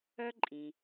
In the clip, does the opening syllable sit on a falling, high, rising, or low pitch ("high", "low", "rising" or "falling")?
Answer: high